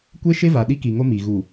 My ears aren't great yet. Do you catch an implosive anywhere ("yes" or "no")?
yes